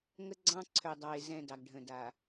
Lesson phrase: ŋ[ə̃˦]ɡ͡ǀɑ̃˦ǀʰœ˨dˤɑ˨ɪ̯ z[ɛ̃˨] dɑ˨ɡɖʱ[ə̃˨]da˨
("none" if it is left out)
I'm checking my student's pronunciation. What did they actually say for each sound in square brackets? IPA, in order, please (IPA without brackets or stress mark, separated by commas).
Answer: ə˦, ɛ̃˨, ə̃˨